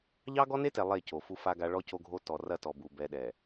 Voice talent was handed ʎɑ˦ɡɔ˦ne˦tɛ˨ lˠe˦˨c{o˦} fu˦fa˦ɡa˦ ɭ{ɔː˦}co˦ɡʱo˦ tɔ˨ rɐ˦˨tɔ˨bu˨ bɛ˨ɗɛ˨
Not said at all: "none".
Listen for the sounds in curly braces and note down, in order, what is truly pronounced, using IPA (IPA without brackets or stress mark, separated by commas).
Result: o˨, ɔ˦